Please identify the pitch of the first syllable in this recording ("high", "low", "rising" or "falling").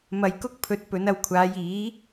low